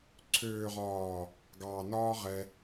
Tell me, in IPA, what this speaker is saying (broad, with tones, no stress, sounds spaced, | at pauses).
ǀʰ øː˨ ʁ ɒː˨ | ɡ ɑː˨ n ɒː˦ ʁ ɛ˦